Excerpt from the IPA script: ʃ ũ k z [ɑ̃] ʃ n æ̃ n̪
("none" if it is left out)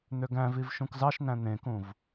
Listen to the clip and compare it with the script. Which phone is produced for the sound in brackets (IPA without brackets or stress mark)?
ɑ